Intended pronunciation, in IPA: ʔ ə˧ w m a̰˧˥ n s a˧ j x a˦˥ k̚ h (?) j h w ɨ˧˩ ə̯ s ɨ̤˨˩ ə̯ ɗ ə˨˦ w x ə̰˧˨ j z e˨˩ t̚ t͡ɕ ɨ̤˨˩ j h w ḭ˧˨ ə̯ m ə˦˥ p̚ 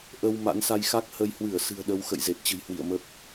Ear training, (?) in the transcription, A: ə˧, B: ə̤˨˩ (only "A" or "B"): A